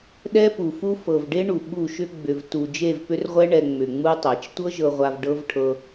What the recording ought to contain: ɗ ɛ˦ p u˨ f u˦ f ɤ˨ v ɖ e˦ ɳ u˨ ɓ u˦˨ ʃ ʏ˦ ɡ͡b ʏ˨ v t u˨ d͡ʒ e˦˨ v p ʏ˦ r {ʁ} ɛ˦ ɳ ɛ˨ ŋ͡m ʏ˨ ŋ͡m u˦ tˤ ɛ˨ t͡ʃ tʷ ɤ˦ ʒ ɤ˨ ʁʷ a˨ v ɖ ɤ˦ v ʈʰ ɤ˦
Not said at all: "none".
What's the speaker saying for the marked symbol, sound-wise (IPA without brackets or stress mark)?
ʁʷ